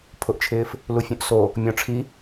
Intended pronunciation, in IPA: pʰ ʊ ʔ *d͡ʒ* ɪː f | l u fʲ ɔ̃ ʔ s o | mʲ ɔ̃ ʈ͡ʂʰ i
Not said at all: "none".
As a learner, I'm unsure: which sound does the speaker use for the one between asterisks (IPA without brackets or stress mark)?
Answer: t͡ʃʰ